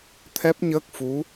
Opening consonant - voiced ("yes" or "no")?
no